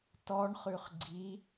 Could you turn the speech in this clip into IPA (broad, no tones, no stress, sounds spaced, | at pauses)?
t ɔ ɳ χ ʉ χ ɡ͡ǀ i